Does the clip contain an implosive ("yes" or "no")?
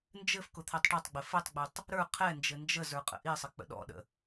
yes